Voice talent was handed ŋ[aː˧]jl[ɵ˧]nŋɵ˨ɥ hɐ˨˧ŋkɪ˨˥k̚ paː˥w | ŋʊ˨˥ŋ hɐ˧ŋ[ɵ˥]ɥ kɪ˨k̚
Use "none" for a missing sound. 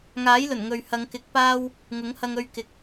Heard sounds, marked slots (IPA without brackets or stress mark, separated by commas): aː˨˥, ɵ˨˩, ɵ˧